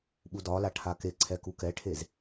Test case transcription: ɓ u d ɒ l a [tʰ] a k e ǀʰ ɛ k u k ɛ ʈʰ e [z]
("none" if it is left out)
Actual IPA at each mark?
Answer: ʈʰ, z

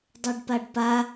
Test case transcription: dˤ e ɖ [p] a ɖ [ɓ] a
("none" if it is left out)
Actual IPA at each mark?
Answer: p, p

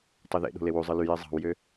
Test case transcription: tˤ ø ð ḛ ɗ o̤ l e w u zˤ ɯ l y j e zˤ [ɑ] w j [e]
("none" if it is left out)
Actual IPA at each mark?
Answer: ɑ̤, ø

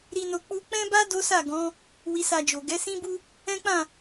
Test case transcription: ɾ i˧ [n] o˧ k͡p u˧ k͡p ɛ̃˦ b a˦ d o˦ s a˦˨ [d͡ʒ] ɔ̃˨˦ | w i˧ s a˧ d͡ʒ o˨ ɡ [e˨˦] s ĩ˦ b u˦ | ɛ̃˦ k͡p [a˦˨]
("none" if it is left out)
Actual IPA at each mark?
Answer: n, ɡ, ɛ˨˦, ã˦˨

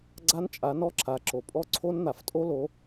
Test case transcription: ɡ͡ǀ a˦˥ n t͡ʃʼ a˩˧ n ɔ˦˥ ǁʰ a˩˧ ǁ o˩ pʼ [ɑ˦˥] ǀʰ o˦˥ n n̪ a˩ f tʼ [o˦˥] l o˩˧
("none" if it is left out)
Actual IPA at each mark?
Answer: ɔ˦˥, o˦˥

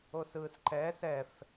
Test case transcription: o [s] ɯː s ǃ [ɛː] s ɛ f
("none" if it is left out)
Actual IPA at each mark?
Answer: s, ɛː

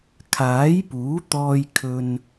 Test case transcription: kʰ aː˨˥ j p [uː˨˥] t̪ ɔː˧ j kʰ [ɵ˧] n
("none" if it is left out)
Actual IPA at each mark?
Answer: uː˨˥, ɵ˧

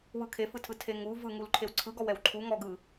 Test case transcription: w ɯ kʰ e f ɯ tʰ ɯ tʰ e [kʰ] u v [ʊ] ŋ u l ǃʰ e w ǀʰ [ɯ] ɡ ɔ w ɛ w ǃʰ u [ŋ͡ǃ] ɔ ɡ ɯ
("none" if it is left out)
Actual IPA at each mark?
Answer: ŋ, ɯ, ɯ, ŋ

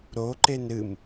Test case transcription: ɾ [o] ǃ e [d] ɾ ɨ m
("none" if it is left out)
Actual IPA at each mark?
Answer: o, n

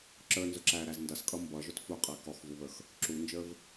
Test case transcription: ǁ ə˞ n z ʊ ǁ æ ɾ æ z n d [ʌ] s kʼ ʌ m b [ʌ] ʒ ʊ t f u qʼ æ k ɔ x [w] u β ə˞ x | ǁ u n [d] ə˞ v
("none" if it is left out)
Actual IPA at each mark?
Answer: ʌ, ʌ, v, d͡ʒ

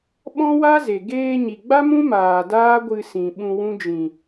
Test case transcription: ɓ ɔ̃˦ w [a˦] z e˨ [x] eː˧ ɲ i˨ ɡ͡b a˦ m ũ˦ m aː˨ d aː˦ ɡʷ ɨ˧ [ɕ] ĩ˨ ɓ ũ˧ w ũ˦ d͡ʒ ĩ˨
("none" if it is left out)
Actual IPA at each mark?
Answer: a˦, ɡ, s

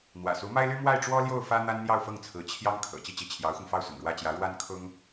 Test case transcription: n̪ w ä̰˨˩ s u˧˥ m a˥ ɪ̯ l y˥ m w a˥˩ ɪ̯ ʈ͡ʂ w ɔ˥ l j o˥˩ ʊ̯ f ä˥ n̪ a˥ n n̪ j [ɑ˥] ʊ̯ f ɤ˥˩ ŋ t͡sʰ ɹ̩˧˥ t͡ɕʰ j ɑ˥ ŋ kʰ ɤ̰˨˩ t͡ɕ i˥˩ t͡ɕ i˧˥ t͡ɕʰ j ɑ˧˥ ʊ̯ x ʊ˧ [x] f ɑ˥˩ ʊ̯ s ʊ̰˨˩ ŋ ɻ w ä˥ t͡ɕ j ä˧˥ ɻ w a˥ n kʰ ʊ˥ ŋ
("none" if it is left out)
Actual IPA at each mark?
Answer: ɑ˥˧, ŋ

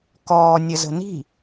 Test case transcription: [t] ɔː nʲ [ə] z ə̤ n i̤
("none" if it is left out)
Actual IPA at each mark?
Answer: k, ə

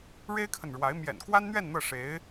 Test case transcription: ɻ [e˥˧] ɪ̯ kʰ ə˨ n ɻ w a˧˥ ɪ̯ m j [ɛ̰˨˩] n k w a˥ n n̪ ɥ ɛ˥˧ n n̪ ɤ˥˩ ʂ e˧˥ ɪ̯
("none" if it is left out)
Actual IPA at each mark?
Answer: e˥, ɛ̰˨˩

